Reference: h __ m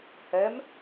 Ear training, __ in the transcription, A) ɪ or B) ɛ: B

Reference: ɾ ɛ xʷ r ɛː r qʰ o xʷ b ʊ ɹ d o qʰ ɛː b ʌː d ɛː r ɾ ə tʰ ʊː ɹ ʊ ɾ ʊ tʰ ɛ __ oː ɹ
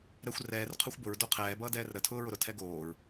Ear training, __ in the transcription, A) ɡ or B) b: A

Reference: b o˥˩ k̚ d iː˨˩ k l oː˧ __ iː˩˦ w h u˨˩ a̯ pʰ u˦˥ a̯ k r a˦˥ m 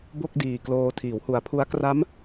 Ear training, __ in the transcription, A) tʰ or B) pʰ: A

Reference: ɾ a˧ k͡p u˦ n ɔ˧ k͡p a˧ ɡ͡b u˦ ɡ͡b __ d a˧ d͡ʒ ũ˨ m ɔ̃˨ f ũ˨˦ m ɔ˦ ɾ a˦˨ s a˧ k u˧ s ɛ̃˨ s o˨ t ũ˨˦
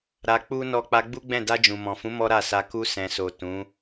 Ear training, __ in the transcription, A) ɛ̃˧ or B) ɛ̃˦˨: B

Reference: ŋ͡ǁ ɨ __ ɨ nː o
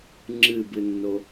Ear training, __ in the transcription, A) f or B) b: B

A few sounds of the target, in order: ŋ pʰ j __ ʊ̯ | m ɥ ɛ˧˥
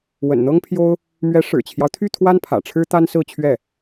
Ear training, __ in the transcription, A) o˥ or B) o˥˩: A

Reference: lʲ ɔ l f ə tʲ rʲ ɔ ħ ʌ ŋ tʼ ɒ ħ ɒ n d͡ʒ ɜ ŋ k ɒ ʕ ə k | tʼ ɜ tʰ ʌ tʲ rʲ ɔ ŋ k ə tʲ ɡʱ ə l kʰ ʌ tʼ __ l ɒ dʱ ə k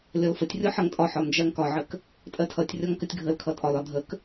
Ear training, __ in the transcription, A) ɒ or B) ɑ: A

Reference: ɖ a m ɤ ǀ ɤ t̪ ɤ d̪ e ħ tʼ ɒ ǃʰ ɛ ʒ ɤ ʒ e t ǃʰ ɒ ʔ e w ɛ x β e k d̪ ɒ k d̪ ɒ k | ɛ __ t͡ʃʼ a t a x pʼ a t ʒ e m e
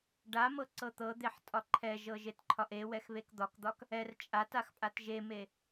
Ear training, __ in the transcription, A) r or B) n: A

